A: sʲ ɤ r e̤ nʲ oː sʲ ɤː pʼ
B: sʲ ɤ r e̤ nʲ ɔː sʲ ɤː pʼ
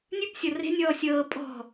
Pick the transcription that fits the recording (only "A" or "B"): B